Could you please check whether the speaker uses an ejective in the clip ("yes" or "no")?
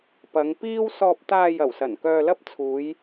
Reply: no